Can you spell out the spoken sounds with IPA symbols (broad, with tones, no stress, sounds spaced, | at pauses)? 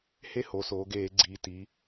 h e˥˧ h o˩˧ s oː˩˧ ɡ eː˧˩˧ ɡ͡ǀ iː˩˧ t i˩˧